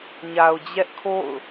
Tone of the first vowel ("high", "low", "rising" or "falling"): low